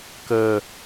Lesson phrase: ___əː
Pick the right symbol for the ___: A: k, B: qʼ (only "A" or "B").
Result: A